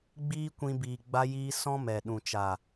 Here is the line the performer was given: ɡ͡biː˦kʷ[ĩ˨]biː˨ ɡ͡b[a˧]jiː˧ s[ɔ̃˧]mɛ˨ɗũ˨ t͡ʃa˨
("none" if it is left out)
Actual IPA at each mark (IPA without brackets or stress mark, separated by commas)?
ĩ˧, a˧, ɔ̃˦